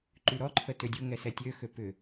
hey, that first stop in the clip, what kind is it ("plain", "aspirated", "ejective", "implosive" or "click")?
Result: click